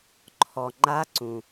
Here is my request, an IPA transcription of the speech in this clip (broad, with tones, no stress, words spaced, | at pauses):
ǃʰɔ˩ŋ͡ǃa˧˥ǀũ˩